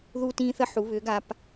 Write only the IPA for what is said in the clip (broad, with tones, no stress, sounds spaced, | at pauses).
ð uː˦ t ĩː˦ θ ə˦ ħ u˩˧ β ʏː˩˧ ɡ a˩˧ p